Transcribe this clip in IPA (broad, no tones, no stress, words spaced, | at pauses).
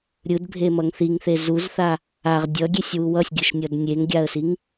ɾʲɯdbʱemʌŋ θiŋθe zuzθa | aʁ dʲʌɡʲesʲwu wʌsʲɡʲɯʃnʲʌd nʲeŋɡʲaə̯siŋ